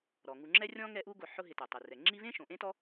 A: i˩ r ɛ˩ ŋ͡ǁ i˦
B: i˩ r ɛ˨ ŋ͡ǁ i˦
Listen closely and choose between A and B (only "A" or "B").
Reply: A